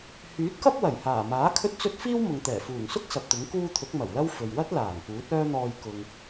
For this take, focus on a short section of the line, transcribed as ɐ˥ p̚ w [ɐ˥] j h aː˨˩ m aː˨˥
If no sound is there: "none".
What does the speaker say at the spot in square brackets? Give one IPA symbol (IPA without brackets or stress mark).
ɐ˨˩